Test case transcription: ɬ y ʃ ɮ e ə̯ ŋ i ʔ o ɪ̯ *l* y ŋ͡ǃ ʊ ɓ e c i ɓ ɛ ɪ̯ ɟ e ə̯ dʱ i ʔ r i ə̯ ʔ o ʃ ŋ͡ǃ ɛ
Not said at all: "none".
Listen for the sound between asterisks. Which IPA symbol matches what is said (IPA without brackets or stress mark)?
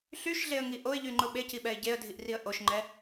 ʎ